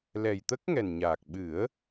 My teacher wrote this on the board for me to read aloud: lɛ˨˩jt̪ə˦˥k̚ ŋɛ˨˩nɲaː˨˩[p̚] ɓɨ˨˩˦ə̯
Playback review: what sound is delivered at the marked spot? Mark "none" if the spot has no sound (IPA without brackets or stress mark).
k̚